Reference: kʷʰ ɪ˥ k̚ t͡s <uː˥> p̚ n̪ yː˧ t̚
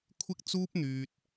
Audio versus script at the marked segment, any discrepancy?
no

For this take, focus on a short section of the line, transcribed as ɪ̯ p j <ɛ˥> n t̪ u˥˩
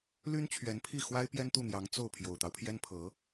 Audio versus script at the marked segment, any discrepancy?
no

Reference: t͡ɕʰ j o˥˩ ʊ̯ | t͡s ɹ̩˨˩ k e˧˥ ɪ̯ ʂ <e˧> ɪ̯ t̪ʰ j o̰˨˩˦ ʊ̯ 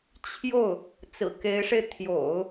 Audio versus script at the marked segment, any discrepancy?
no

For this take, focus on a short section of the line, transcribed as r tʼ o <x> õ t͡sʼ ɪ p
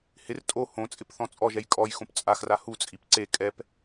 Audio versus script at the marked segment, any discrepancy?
yes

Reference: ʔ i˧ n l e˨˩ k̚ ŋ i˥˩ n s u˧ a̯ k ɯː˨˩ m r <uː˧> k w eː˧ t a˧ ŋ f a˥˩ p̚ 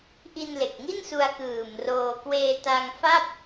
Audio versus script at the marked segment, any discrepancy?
yes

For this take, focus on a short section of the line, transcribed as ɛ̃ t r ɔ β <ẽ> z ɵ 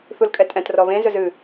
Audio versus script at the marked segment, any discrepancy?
no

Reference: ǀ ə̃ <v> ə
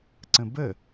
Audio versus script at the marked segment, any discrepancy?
yes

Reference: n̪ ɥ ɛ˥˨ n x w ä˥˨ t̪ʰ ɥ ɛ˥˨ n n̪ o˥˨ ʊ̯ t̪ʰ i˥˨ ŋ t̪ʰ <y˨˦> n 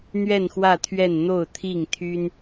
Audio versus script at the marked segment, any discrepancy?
yes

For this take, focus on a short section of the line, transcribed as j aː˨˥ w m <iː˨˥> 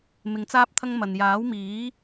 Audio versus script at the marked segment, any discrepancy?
no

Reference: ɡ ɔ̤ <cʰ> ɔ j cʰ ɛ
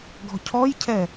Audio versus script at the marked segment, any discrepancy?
no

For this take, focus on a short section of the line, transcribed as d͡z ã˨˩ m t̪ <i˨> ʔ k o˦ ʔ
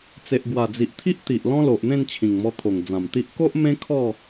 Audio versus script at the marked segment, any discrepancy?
yes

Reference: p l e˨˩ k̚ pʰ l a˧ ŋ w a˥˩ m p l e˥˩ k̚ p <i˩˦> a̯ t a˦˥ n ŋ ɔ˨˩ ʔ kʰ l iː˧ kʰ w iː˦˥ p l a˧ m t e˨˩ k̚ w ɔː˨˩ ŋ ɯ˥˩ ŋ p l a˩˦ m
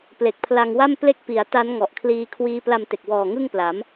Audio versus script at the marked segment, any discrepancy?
no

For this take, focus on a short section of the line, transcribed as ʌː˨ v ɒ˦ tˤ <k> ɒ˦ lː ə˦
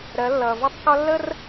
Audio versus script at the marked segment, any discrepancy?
no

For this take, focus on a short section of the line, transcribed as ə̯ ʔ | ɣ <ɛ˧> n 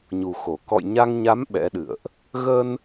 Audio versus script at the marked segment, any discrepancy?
yes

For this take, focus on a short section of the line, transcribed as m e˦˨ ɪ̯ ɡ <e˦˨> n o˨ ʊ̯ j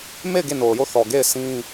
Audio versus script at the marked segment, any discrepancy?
no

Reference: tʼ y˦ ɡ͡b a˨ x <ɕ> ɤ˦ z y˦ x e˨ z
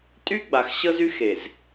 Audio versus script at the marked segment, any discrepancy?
no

